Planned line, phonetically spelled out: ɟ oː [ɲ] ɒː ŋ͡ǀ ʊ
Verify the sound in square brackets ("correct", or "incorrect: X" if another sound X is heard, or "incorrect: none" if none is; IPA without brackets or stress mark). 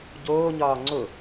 correct